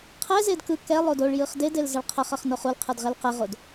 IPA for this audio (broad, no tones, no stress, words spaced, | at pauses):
qʰɛzed kɯ kɛlˠod oɭ jɯχdedel zʌɭqʰʌχʌχ noχulqʰɯd ʁɛlqɛʁod